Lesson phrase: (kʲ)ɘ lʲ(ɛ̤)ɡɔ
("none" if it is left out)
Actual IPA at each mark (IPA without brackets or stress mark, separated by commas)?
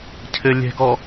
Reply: cʰ, ɛ̤